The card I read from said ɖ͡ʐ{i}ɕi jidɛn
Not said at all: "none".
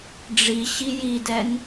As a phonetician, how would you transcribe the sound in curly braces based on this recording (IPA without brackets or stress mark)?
i